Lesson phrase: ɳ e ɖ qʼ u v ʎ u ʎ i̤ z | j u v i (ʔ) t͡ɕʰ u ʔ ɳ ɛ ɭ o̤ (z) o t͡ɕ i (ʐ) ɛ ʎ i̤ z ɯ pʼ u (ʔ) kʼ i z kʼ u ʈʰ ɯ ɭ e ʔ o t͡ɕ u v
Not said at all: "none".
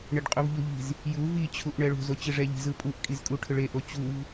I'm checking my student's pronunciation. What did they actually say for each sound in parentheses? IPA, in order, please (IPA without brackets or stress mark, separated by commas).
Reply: none, z, ʐ, ʔ